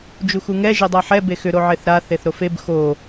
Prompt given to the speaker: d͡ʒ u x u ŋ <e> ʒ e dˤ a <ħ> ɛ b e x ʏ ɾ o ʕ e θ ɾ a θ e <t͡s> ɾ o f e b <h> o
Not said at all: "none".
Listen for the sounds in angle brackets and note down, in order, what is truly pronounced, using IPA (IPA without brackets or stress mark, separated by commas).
ɛ, ħ, θ, x